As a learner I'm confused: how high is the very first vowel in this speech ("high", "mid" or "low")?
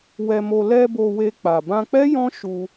mid